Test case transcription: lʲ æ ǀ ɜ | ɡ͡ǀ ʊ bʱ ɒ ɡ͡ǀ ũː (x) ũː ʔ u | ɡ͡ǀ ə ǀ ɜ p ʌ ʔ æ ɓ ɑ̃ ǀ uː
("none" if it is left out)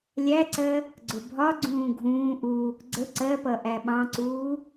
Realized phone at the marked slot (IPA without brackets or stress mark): ɡʱ